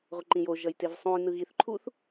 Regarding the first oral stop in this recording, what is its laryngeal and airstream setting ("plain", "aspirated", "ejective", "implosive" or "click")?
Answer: click